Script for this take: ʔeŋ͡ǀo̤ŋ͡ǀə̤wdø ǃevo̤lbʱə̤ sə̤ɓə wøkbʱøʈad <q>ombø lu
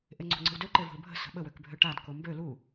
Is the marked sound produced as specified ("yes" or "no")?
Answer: no